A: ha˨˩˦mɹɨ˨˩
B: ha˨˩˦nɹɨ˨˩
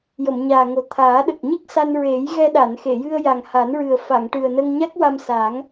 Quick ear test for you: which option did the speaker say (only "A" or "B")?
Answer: B